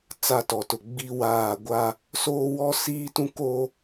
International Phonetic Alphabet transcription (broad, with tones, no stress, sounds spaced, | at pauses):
t͡s a˦ t ɔ˨ t ʊ˨ ɡ͡b i˦ w aː˦˨ ɡʷ a˦ | s oː˦ w ɔ˦ s iː˦ t ũ˦ k o˦